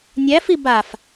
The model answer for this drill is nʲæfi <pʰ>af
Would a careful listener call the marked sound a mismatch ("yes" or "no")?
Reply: yes